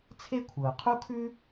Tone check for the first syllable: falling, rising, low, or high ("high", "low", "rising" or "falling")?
high